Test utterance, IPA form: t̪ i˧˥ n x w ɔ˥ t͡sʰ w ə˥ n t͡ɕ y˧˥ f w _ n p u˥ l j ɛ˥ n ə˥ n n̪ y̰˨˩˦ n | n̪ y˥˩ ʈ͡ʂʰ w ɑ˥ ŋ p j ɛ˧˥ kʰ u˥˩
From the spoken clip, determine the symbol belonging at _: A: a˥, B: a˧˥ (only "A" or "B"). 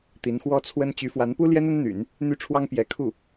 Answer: B